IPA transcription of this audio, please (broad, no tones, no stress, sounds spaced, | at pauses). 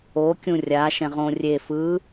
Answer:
o kʲ ũ rʲ a ʃ ɛ̃ ʁ õ rʲ e f ɯ